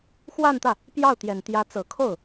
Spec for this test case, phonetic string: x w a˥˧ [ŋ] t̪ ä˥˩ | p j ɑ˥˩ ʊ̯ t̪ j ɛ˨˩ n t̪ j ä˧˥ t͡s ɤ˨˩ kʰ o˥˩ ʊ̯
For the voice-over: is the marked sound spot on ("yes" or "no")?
no